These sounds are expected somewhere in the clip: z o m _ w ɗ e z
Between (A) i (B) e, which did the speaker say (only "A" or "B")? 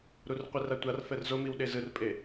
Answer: A